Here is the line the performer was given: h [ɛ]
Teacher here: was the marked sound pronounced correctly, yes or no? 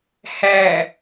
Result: no